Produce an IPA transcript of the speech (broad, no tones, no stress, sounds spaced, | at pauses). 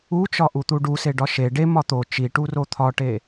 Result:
u t͡ʃ ɒ ʔ u t̪ u ɖ u s e ɖ ɒ ʃ e ɖ e m ɒ t̪ o t͡ʃ i ʈ u r o t̪ʰ ɒ ʈ e